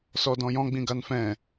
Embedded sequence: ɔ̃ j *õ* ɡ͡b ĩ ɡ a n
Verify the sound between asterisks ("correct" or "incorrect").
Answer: incorrect